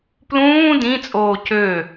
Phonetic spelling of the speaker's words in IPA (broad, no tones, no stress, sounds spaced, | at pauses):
p l ũː d ĩ t͡sʼ oː c ø